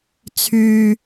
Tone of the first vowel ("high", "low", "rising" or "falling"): low